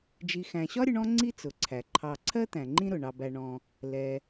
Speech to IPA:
d͡ʒ i˨ x æ̃˨ ɕ ɒ˥ ɾʲ ʊ˦ ɳ ɔ̃˥ ŋ͡ǀ i˥ t͡s ʊ˩ ǀʰ æ˩ ǃʰ ɑ˨ ǀʰ ɜ˥ t̪ æ̃˩ ŋ͡ǃ ĩ˦ ɾ ʊ˩ ɳ ɑ˨ b æ˨ ɳ ɔ̃˨ | l ɛ˩

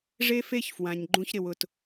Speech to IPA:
ʐ e˦ f e˦ ç f w ã˨ ɲ ɡ͡ǃ ũ˦ ç ɾ ɪ˨ w ʊ˨ t

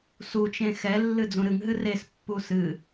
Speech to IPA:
s u t͡ʃ ẽ x ɛ lː ɨ d͡z ũ ɾ ɨ ŋ ɦ ɨ r e s pː u s ɨ

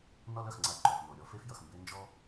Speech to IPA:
n ɒ˥ l œ˩ x ŋ͡ǀ a˧ ǃ œ˩ f n o˩ ɾʲ ɔ˥ f e˥ f j ʌ˩ x m b e˥ n d͡ʒ ɔ˥

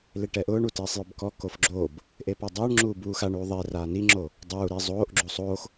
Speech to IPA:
l e ʈ ɛ ʔ ʊː ɳ u t eː sˤ j ʊ b k ɔ k o f ɡ͡ǁ oː b | ʔ e p a dˤ ʊː ɳ ŋ͡ǁ uː b uː x a ɳ uː ðˤ e r aː n i ŋ͡ǁ oː | dˤ uː ɾ e zˤ oː ʔ ɡ͡ǁ u sˤ oː x

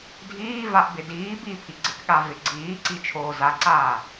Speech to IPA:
dʱ iː v a ʔ b ɪ d iː b i pʰ i ɡ͡ǀ ɪ k ɠ a v ɪ ɡ͡ǀ iː ǀ i t͡ʃʰ oː z a ǀ aː

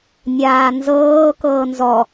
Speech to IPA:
nʲ aː n z ɤː k ɤː n z ɔ

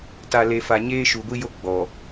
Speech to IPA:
t a˨ l e˨ f a˨ ɲ eː˦ ʃ u˨ ɡʷ i˦ j o˦ ɡ͡b ɔ˨

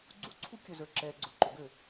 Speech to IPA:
ɡ͡ǀ u˦˨ ǀʰ u˦ kʲ ɵ˨ z ə˞˨ ǁ ɛː˨ ɡ͡ǀ ʊ˦˨ ǃ o˨ ɡ ø˦˨

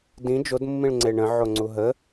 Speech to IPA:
d ĩ d͡ʒ o d mː ĩ ɭ ŋ͡ǀ e ɳ ə̃ ʕ o ŋ͡ǀ u ɦ ə

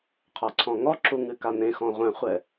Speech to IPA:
qʰ a ǀʰ ɔ̃ ŋ ɔ ǁ u ŋ ɨ k a n ẽ x ɔ̃ ʁʷ ɛ̃ χʷ ɛ

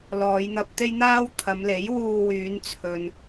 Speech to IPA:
l ɔː˨˧ j n̪ ɐ˧ p̚ t̪ e˥ j n̪ aː˥ w t̪ʰ ɐ˨˧ m l e˨˥ j w uː˧ w yː˨˧ n t͡sʰ ɵ˨ n

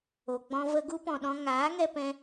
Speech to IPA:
o˨ ɡ͡b ɔ̃˧ v ə˧ ɡ u˦ p ɔ̃˨ ɗ ɔ̃˧ ŋ aː˨˦ ŋ ɛ˧ p ɛ̃˧

